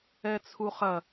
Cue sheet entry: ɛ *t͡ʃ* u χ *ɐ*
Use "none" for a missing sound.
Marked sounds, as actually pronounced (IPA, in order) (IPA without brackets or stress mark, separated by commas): t͡sʰ, ɐ